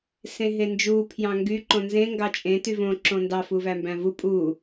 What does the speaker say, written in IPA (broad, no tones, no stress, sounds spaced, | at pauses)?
s ẽ ɦ e n d͡ʒ uː pʰ j ɑ̃ ŋ ɡ y ǃ õ n z ẽ ŋ ɡ ɑ t͡ʃʼ ẽ t y v õ ǁ õ n d ɑ f u v æ m b æ̃ v u pʼ u